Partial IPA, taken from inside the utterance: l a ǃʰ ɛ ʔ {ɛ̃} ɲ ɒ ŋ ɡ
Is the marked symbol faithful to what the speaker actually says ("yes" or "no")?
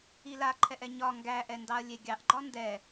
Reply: no